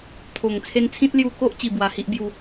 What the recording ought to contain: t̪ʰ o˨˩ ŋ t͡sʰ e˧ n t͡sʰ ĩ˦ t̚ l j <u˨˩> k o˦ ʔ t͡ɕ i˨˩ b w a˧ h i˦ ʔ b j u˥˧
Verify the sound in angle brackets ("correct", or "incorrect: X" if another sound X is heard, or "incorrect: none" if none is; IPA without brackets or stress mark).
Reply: incorrect: u˧